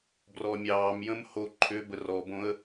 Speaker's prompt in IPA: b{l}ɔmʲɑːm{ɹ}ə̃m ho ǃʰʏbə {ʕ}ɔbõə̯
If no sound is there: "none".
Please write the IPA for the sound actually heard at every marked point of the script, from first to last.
r, j, r

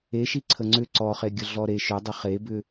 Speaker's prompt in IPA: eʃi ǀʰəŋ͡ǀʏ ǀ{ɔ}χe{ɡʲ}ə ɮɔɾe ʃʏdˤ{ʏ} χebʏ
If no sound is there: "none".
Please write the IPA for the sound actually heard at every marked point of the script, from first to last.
ɔ, ɡʲ, ə

